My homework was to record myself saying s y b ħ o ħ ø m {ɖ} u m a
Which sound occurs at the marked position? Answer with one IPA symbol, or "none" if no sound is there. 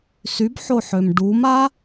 ɖ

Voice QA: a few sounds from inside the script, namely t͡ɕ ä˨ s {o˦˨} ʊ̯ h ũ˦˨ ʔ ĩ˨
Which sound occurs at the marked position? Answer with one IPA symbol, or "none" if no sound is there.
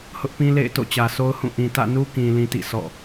o˦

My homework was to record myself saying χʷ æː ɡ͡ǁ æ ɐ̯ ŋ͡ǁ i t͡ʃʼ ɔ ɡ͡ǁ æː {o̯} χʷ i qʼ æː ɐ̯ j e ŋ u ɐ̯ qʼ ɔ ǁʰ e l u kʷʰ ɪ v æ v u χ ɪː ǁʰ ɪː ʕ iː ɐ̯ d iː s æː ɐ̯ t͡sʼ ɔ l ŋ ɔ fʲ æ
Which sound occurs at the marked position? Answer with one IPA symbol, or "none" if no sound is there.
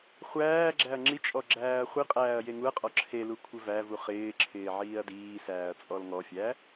ɐ̯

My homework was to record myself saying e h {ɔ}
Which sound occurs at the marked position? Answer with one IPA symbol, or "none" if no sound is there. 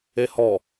ɔ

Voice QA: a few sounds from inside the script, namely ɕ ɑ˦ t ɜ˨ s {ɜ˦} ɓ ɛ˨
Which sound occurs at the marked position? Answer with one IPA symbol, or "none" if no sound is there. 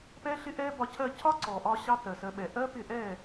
ɜ˧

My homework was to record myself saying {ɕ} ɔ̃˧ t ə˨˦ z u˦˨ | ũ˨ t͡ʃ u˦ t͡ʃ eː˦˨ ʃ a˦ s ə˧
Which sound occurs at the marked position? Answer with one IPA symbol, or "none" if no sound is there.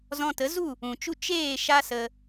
z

